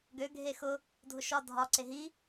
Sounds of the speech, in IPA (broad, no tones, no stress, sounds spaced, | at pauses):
ɡ ø ɡʱ e x ʊ | dʱ ʊ ʃ ɒ dʱ ɒ ǀ e ɦ i